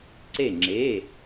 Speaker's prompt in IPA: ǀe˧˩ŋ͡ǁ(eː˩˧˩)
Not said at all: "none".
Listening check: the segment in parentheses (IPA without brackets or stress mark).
e˩˧˩